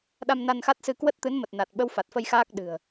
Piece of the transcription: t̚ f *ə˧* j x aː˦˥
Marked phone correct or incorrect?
correct